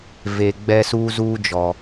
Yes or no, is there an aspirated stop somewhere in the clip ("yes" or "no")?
no